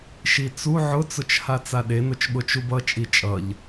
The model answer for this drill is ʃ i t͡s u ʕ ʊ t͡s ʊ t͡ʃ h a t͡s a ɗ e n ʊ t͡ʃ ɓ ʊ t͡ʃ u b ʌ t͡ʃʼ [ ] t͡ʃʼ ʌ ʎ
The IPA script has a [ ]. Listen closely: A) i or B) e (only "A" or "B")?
A